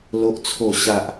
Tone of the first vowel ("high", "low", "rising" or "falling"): low